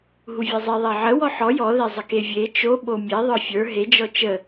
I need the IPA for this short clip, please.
ɦ u vʲ e zˤ e ðˤ e ʕ ə w ɔ ħ ɔ j ɔ ð e zˤ ə k e vʲ e t͡ʃ o ɓ o mʲ e ðˤ ə˞ fʲ ə˞ ɦ e d͡ʒ ɔ t͡ʃ ə

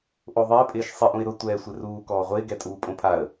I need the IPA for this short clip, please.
ʔ o ðˤ ɪː pʼ ɪː ʃ sˤ ɪ ʔ ũ ɪ̯ ɾ ʊ tʷ ɛː sʷ ɪ r uː k ɔː ʁʷ ɪː ɡ ɛ tʼ uː pʼ õ pʰ a ə̯

